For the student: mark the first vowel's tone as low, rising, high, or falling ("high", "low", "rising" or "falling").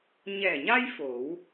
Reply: low